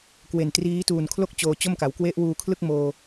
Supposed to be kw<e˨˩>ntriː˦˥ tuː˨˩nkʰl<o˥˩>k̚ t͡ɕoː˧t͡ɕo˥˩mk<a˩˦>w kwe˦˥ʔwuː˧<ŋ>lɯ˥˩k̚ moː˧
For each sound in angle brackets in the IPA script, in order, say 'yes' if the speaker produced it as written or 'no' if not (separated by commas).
yes, yes, yes, no